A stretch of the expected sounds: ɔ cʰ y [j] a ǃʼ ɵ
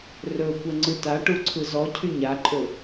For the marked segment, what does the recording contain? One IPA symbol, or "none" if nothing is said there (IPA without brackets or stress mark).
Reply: ɲ